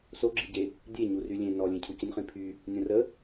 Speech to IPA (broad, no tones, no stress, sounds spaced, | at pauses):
s o ɡ͡ǁ i ɟ e | dʲ e ɲ u r y lʲ ẽ n ɔ lʲ ẽ cʰ u c ə nʲ χ ĩ pʰ y | nʲ õ r ə